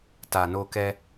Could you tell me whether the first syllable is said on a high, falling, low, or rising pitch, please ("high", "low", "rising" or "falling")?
low